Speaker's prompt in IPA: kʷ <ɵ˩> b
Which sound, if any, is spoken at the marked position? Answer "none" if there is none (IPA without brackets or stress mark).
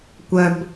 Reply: œ˩